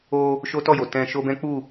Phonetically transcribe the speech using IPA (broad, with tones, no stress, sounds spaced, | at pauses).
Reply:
o˧ | ʃ o˦ t ɔ˦˨ j o˨ t ɛ̃˧ ʃ o˧ b ɛ̃˦ k͡p u˦˨